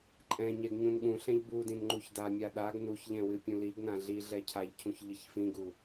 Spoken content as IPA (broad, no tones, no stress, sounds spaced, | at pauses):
ǃʼ ɛ̃ ɲ ɛ ɡ ɲ ũ n ɠ ũ ɬ ɛ̃ ʎ b u d ĩ n ŋ͡ǃ u ç d a mʲ a ɗ a ɡ n u ç ʎ ɛ̃ w ɨ pʲ ũ l i ɡ n ã ɮ i ɮ ɛ cʰ a ʎ cʰ ũ ç ʎ ɨ ç f ĩ ɡ u